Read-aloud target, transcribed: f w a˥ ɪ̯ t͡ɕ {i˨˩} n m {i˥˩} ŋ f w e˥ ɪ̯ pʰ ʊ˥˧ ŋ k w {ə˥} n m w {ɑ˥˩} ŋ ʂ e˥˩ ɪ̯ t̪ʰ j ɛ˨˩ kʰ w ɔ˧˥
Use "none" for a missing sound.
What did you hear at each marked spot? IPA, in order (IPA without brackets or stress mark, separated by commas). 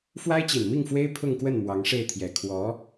i˨˩, i˥˩, ə˥˩, ɑ˧˥